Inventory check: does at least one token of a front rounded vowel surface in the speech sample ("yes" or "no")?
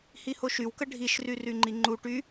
yes